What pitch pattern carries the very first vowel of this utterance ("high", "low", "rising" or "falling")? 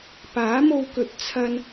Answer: rising